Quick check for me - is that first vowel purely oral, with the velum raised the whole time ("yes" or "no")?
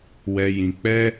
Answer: yes